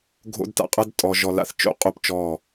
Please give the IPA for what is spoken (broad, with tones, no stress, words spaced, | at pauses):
ɡʱo̰˦dta̰˦qʼɐ˦d tʼɔ˨ʒɔ˨la̰˦θ t͡ʃo̰˦qʼo˦pt͡ʃɔ˦˨